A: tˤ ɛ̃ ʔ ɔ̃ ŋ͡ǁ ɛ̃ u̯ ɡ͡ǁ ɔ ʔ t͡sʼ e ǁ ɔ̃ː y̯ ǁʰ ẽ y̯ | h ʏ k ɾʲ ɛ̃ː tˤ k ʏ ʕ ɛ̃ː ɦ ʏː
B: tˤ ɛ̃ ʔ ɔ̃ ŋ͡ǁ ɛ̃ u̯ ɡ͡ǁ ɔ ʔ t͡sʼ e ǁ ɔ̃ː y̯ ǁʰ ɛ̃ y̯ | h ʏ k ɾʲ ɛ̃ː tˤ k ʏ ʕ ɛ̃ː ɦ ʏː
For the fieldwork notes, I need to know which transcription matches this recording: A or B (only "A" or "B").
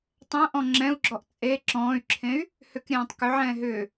A